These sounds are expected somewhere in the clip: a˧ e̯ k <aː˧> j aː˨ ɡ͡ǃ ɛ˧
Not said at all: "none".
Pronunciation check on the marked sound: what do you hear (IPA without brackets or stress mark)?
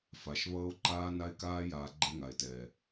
aː˧